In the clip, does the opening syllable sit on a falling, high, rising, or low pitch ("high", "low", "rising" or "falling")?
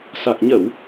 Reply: low